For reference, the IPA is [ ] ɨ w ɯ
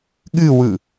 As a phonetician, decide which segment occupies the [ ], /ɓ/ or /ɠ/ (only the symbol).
ɠ